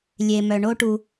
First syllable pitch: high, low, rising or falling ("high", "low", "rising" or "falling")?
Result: low